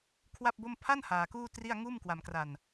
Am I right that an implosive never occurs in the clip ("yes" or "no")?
yes